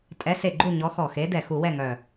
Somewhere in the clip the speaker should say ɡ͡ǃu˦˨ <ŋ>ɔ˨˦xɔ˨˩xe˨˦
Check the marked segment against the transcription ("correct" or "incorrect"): incorrect